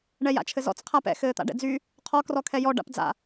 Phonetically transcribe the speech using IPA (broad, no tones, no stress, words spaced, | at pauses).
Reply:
ɳɛja̰t͡ʃʰɘzɔ̰t͡s qʰapɛ̰ xɘːt̪a̰ɖɛ̰d͡zy | qʰɔ krɔkʰɛjɔ ɖa̰pd͡za̰